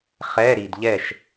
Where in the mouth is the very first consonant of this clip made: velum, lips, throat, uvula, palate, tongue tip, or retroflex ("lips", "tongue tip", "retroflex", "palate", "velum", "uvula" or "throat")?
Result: uvula